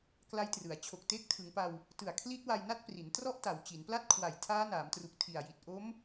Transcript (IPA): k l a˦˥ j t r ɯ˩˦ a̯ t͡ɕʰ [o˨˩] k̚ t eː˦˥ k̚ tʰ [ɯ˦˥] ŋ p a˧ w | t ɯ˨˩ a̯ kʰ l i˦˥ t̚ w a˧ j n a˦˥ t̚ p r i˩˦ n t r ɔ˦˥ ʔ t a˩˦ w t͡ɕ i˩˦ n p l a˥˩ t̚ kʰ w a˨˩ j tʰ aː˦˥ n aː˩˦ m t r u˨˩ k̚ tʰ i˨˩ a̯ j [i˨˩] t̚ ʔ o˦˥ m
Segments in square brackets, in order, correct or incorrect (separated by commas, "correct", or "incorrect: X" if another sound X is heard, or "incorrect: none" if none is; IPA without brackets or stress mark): correct, incorrect: ɯ˩˦, correct